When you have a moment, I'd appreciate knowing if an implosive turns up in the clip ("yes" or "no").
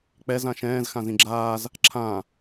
no